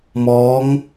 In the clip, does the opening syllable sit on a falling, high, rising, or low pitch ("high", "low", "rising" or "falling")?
rising